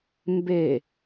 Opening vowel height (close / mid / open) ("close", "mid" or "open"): mid